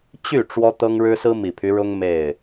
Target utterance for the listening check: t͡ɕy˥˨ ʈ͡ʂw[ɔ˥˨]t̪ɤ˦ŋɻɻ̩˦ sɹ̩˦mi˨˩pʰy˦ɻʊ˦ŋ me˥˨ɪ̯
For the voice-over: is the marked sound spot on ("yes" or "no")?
no